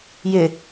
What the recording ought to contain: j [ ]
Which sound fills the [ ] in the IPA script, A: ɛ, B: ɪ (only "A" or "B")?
B